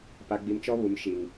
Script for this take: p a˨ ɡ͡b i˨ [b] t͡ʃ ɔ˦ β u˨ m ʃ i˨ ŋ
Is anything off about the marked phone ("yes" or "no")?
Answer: yes